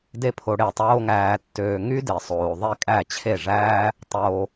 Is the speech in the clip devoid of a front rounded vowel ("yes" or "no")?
no